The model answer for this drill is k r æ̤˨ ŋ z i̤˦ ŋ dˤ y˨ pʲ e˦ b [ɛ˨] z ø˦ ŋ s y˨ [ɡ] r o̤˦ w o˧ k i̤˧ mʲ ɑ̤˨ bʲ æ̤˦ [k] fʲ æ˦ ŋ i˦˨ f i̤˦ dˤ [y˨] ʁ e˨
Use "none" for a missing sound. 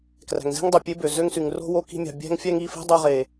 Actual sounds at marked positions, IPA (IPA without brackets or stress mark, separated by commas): ø˨, ŋ, ŋ, y˧